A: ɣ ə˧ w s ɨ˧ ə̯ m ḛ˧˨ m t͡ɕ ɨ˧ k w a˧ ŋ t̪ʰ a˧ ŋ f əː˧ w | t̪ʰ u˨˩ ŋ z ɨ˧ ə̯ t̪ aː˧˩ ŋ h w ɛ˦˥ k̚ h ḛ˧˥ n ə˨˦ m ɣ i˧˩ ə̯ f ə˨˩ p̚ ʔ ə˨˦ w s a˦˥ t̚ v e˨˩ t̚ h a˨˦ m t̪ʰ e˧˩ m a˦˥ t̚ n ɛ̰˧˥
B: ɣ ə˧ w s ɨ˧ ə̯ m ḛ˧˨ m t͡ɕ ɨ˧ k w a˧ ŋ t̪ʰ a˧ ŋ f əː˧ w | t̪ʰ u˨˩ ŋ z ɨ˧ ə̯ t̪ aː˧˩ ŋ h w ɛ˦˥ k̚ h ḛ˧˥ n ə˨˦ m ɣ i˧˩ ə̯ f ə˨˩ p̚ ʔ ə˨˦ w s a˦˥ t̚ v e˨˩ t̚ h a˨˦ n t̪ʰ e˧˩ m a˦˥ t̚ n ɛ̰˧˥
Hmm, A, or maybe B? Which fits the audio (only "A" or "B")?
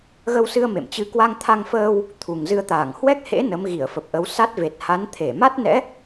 B